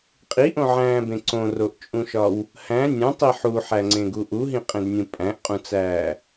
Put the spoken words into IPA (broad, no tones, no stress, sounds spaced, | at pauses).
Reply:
qʼ i ʔ õ ʕ æ̃ː b ẽ ǀ õ r o ʔ t͡ʃʼ ũ ʃ ɒ w | h æ̃ nʲ õ tˤ i ħ u ħ æ ŋ͡ǀ ẽ ɡ u ʔ u ɦ ĩ qʼ ẽ d nʲ ũ pʼ æ̃ ʔ qʼ ũ t͡s æː